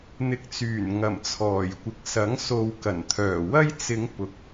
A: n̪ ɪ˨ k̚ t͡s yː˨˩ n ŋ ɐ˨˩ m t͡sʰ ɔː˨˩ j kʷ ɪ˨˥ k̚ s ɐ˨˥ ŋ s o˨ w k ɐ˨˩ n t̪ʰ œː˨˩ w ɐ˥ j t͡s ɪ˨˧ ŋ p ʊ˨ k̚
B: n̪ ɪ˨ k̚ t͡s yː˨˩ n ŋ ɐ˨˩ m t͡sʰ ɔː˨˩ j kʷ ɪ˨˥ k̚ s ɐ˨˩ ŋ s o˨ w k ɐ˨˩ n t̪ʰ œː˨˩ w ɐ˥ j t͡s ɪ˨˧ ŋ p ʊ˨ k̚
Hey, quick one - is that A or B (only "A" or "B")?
A